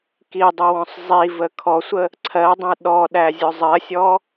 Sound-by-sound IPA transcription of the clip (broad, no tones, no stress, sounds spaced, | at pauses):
k i dˤ ʊ w ɔ̃ sˤ zˤ i v ə kʰ ɔ sʷ ə | ǀʰ ɜ dˤ ə̃ u̯ ɗ ɔ ɗ æ zʲ ʊ zˤ ɜ sʲ ɔ